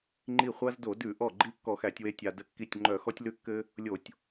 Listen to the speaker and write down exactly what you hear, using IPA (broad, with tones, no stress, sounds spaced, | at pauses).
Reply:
ŋ͡ǃ i˧˩ χʷ a˧ z d o˧˩˧ d ʉ˧˩˧ ʔ ɔ˧˩ ɡ͡ǃ i˧ kː ɔ˧˩˧ x æ˧˩˧ tʲ w e˧ tʲ a˧ d ə˧˩ kː i˧˩ tʲ ŋ͡ǃ œ˧˩˧ x ɔ˧ tʲ l ʉ˧ kː ɘ˧ | lʲ o˧˩˧ tʲ